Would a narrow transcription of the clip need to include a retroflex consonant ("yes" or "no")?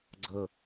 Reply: no